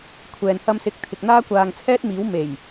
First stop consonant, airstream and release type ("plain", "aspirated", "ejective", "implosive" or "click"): aspirated